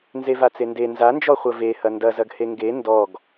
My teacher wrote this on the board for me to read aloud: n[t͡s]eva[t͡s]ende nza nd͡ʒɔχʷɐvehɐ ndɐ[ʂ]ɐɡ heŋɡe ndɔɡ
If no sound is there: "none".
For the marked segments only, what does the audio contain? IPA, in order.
z, t͡s, z

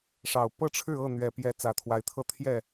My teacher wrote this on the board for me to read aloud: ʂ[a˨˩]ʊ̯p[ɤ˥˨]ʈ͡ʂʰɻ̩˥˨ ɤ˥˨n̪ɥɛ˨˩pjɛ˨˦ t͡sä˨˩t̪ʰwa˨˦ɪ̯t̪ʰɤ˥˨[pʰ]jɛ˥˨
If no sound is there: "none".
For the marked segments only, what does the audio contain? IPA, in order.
ɑ˨˩, ɤ˥˨, t̪ʰ

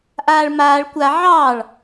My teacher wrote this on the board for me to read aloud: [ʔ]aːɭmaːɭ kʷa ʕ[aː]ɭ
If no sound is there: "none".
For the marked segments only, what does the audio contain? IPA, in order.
ʔ, ɑː

